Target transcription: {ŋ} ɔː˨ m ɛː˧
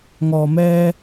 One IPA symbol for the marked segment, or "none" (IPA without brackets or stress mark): ŋ